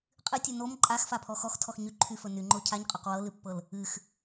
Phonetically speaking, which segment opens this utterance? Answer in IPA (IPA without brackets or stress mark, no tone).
qʼ